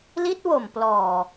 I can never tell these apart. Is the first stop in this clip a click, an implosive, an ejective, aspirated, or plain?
plain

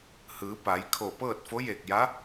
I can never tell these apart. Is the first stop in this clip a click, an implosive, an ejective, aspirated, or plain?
plain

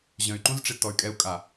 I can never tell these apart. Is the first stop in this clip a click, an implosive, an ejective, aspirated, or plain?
click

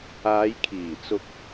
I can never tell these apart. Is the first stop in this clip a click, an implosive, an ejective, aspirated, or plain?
aspirated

